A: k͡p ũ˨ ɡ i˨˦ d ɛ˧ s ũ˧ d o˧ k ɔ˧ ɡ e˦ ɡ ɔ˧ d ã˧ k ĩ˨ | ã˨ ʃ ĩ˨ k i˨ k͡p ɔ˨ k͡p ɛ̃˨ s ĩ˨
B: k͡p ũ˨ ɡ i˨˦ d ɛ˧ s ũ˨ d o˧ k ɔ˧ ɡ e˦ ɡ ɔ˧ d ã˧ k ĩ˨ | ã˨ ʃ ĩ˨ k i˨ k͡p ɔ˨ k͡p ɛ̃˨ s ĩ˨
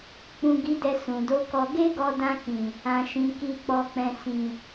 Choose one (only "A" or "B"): B